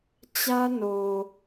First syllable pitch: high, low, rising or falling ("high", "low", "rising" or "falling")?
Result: high